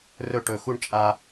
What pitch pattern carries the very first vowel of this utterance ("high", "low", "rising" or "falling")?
high